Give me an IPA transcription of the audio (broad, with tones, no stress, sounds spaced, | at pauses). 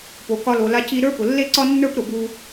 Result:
p o˩ k ɒ˧ l o˩ l a˧ c i˥ ɾ ə˞˥ p ʊ˩ lː e˥ ǀ ɒ˥ nː ə˞˥ p ɾ ʊ˩ b u˧